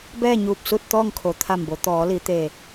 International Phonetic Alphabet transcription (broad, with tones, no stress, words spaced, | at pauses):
bɛː˥˨ɲuː˧˩p̚ su˥˨t̚ t̪ɔː˥˨ŋkʰo˩˧t̪ʰa˧˩mbo˩˧ t̪ɔː˩˧li˩˧ t̪e˧˩